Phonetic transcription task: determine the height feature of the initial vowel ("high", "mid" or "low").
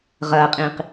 low